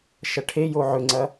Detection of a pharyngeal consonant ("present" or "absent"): present